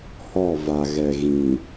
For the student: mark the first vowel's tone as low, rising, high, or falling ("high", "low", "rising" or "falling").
falling